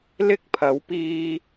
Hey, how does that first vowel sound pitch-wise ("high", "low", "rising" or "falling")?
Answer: high